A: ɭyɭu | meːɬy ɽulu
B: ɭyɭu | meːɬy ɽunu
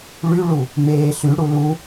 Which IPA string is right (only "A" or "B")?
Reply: A